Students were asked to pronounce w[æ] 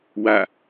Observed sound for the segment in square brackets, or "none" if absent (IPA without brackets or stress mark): a